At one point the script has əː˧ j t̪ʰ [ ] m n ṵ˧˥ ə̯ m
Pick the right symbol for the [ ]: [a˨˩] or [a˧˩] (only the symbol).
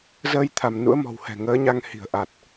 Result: a˧˩